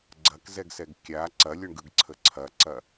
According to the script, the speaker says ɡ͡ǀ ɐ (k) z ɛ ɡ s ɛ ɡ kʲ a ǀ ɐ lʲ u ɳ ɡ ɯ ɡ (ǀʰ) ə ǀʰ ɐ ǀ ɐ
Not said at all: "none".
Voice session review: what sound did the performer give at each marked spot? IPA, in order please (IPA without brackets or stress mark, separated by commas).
k, ǀʰ